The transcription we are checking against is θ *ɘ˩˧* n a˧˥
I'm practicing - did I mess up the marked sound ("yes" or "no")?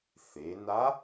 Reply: yes